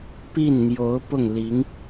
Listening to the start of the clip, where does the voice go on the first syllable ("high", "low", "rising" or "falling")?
falling